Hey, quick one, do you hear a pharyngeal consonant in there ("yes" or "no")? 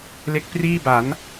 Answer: no